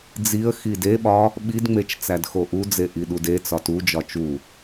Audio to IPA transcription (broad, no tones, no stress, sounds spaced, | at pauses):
d͡z i ə̯ x i d e ɓ ɒ | ɓ i d ŋ͡m e t͡ʃ t͡s æ d x o ʔ u d͡z e ʔ i ɗ u d e t͡s ɒ t u d͡ʒ ɒ t͡ʃ u